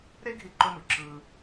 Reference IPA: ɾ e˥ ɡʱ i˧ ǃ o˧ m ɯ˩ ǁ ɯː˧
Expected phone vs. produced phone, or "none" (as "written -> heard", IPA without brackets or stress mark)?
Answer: none